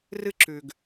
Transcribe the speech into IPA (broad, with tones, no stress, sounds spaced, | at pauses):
r ɨ˧ ǁ ʉ˩ ɡ